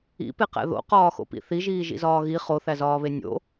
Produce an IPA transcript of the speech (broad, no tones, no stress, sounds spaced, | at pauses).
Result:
ḭ p e q æ̰ ð o̰ q ɒː x o̰ p ḭ θ i ʒ iː ʒ ḭ z ɒː ɣ i χ o θ æ z ɒː β e nʲ o̰